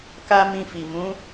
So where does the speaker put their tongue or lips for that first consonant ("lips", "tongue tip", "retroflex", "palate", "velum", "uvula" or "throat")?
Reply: velum